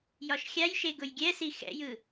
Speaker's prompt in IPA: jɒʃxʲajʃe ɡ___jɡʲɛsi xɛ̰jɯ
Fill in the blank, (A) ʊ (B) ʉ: A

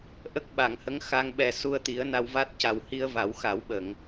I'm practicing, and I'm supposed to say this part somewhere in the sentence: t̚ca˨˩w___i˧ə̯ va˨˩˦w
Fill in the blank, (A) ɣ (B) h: B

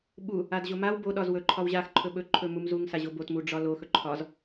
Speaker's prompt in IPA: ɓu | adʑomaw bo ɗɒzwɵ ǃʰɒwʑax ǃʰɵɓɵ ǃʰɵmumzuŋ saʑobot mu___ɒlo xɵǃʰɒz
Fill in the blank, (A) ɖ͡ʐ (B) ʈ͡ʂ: A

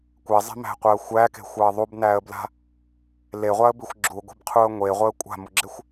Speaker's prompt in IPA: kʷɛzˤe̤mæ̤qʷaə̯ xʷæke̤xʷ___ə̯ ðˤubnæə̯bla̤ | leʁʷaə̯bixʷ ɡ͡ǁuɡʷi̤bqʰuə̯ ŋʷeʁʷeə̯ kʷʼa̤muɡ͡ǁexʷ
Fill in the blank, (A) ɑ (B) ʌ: A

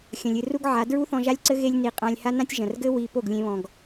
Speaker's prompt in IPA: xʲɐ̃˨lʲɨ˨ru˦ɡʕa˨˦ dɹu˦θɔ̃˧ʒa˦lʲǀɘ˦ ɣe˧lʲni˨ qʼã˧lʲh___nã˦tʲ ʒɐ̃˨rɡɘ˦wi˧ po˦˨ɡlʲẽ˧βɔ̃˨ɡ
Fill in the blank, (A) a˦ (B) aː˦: A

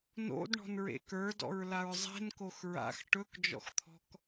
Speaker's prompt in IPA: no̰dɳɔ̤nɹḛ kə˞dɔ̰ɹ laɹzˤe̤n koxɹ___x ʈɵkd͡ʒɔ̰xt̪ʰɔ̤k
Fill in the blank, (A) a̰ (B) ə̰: A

